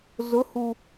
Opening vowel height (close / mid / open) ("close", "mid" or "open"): close